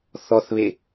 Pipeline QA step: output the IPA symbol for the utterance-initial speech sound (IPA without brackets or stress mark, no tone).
θ